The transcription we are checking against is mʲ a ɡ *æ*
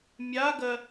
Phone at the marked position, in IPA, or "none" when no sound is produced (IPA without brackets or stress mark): ɜ